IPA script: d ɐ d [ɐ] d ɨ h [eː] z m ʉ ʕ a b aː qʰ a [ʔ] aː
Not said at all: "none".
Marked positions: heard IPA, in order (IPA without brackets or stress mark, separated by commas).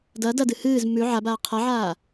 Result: ɐ, ɨː, ʕ